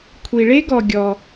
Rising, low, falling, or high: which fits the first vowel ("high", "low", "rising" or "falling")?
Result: low